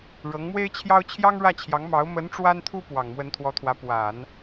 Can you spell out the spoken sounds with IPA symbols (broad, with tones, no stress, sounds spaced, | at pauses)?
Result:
ɻ ɤ˧˥ ŋ m w e˥ ɪ̯ t͡ɕʰ j ɑ˥ ʊ̯ t͡ɕʰ j ɑ˥ ŋ ɻ ä˥˩ t͡ɕʰ j ɑ˧˥ ŋ m ɑ˧˥ ʊ̯ m ə˧˥ n ʈ͡ʂ w a˥ n t̪ʰ u˥ p w ɑ˨˩ ŋ m w ə˧˥ n t̪ʰ w ɔ˧˥ t̪ʰ w ä˧˥ p w a˨˩˦ n